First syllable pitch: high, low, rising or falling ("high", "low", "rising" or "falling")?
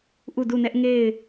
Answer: falling